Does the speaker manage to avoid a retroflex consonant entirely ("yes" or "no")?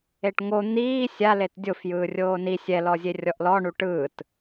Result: no